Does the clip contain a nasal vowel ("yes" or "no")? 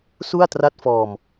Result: no